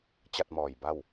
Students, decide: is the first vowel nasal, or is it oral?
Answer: oral